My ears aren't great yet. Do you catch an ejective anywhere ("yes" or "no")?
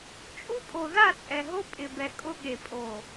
yes